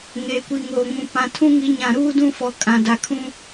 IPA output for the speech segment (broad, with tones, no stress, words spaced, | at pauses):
ŋeː˨kʷi˨ŋoː˨ ŋũ˨pã˨ tʰũ˦ŋi˨˦ ɲã˨ɾuː˦dũ˦fɔ˨ kʼã˨da˨kʰũ˦